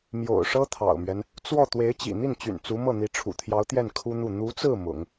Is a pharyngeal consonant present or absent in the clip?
absent